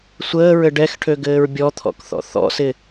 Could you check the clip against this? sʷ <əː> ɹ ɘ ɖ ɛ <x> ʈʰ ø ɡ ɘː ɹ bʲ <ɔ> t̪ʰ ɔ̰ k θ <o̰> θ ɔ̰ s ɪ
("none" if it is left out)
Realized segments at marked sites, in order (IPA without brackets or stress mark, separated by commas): əː, x, ɔ, ɔ̰